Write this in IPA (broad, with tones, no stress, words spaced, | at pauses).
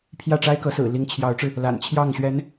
pʰjä˥˩ʈ͡ʂa˥ɪ̯kɤ˧˥ sɹ̩˨˩li˧˥ŋt͡ɕʰjɑ˧˥ʊ̯ʈ͡ʂɻ̩˧ | la̰˨˩nt͡ɕʰjɑ˥˩ŋɕɥɛ˧˥n